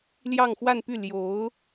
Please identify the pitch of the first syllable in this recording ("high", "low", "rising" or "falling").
falling